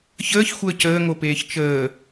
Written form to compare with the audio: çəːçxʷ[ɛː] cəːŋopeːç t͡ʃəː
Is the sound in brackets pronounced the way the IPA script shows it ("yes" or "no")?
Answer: no